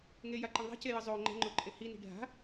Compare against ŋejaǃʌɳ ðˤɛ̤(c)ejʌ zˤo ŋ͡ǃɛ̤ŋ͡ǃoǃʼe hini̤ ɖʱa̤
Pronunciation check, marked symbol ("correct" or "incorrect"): correct